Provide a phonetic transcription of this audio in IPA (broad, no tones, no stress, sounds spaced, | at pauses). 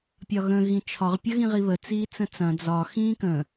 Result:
pʲ ɒ ɣ ə̃ ɣ ĩ t͡ʃʰ ɒ ʁ pʲ ɐ ɣ ĩ ʁ i β ə t͡s iː t͡s ə̃ t͡s ɐ̃ d͡z ɒ x ĩː k ə̃